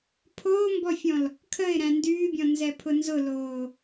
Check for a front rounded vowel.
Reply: present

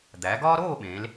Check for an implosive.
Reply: present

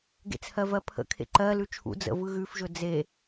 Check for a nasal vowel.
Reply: absent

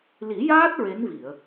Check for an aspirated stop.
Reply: absent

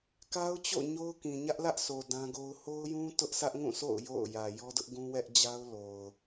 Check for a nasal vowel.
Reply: present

